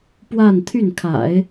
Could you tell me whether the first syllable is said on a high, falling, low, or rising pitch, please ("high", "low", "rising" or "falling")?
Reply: falling